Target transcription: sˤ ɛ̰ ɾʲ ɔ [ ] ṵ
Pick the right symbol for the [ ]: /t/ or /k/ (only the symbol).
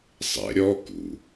k